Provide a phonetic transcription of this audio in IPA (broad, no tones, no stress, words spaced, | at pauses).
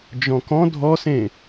d͡ʒɔ̃kɔ̃ dʱɔsẽ